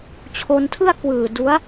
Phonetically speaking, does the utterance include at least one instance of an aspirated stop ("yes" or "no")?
yes